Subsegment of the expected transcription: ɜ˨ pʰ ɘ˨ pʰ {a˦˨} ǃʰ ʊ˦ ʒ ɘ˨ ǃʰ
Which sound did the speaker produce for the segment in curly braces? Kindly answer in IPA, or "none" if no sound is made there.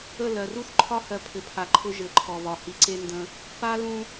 a˨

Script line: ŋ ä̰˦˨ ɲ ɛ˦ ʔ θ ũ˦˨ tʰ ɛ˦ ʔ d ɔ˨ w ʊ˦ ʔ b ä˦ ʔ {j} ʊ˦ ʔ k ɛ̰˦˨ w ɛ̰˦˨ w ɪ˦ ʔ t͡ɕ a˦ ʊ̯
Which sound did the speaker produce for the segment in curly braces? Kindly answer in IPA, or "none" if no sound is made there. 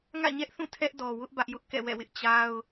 j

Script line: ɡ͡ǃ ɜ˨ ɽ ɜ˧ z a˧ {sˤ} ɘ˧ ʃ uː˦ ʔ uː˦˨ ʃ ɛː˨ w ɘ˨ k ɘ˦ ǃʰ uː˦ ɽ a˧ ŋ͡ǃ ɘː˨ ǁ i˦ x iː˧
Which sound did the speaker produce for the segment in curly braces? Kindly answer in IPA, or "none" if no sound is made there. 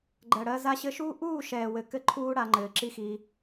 ɕ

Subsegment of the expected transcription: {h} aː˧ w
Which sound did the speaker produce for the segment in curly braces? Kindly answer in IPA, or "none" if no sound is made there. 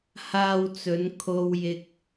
h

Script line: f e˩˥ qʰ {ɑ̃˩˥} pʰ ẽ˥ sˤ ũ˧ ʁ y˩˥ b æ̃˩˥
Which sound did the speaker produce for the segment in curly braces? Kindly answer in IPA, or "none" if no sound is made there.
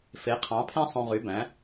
ɑ̃˩˥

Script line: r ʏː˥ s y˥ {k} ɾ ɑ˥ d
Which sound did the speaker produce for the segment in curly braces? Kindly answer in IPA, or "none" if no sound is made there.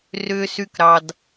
k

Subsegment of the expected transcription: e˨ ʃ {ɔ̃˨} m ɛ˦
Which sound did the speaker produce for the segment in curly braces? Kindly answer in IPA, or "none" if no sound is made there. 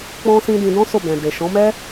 ɔ̃˨˦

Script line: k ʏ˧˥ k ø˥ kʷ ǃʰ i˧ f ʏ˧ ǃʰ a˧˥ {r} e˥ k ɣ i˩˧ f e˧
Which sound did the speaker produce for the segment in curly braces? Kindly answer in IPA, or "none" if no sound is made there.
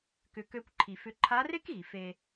r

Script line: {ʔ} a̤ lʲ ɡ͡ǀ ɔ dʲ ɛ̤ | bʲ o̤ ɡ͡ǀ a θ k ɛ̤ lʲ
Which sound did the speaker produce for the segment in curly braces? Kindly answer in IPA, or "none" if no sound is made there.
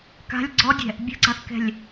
k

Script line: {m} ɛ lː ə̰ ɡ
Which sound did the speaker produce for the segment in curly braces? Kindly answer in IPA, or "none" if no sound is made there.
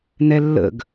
n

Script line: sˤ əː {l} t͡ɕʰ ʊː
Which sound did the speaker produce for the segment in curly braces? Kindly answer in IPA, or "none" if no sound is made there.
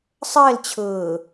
l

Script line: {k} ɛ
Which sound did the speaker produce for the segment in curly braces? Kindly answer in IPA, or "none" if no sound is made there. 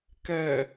k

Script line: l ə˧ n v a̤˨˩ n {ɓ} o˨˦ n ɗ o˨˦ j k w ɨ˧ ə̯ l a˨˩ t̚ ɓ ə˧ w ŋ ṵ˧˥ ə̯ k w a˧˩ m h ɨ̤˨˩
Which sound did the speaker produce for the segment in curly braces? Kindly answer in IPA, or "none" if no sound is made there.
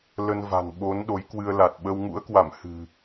ɓ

